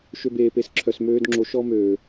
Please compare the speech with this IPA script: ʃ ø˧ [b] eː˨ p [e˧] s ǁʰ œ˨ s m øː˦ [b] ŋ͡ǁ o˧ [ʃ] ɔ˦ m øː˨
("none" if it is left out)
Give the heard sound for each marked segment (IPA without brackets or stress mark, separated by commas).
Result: b, e˨˦, d, ʃ